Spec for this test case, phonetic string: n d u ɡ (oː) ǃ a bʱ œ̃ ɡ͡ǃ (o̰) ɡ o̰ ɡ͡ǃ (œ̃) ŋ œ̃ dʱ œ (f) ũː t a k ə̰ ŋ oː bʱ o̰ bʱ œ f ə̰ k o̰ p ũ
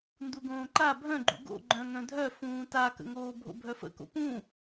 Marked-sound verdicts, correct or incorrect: incorrect: õː, incorrect: ṵ, correct, correct

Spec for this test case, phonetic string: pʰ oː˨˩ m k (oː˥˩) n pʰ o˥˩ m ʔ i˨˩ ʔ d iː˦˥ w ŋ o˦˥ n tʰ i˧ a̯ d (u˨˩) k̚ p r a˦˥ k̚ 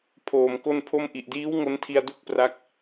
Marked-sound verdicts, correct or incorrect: incorrect: o˥˩, incorrect: u˥˩

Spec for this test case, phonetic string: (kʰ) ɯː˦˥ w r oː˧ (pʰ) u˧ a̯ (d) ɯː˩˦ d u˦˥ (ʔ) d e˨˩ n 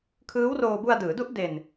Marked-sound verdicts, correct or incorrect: correct, incorrect: b, correct, correct

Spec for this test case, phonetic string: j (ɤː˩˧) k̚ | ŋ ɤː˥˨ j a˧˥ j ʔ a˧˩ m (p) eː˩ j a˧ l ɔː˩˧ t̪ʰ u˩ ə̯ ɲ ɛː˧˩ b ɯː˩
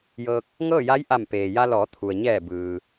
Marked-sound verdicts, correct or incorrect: incorrect: ɤː˧, correct

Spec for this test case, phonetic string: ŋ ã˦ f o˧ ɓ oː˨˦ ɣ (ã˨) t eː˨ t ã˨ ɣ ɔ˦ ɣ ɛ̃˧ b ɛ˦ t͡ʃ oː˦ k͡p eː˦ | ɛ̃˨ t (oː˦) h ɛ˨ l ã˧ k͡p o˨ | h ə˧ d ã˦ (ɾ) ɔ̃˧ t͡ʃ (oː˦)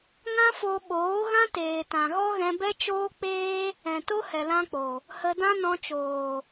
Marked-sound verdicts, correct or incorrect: incorrect: ã˦, incorrect: o˦, incorrect: n, incorrect: oː˨

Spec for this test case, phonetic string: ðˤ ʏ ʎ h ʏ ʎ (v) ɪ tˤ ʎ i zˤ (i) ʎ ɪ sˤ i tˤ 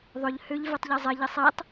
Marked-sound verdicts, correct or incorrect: correct, incorrect: ɪ

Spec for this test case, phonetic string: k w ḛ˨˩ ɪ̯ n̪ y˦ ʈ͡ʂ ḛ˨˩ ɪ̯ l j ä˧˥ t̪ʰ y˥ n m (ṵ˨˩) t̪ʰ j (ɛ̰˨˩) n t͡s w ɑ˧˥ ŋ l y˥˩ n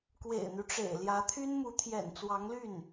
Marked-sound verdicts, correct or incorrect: incorrect: u˧˥, correct

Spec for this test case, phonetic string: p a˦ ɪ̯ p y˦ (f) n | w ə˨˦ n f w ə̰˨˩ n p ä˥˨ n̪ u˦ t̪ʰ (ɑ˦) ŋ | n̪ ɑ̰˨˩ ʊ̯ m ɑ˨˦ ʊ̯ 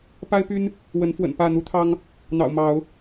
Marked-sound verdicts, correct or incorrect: incorrect: none, correct

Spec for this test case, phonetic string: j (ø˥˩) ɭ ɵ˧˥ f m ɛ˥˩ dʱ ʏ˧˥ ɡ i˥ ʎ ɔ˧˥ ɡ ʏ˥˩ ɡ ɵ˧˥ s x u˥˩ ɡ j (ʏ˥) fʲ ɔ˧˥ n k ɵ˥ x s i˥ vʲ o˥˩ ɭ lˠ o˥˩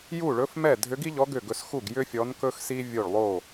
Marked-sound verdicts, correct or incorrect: incorrect: u˥˩, correct

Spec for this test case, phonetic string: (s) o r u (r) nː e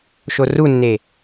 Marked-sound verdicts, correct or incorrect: incorrect: ʃ, incorrect: none

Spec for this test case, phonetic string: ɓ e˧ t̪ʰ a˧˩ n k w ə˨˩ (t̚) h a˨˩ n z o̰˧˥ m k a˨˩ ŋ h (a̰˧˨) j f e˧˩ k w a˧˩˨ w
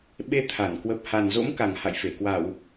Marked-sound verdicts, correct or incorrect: incorrect: p̚, correct

